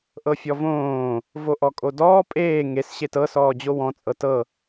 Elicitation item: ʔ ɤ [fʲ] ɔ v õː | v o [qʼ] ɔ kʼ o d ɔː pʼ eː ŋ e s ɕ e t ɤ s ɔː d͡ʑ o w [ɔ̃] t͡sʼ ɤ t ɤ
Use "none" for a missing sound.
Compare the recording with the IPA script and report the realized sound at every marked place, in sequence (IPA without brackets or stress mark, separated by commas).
fʲ, ʔ, ɔ̃